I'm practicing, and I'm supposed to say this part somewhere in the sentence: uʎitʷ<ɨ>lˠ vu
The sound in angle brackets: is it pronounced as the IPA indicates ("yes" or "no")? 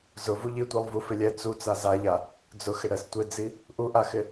no